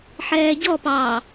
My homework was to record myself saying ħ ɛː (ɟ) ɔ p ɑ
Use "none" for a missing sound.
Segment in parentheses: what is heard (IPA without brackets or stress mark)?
ɟ